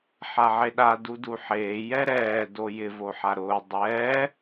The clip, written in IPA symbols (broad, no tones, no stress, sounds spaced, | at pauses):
ħ a ʕ e ɗ a d u d u ħ eː j ɛ ɾ ɛː d o j ɪ v o ħ a ɾ ʊː dˤ ɛː